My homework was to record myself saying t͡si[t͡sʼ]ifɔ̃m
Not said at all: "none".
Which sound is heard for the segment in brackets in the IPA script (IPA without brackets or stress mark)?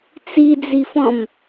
d͡z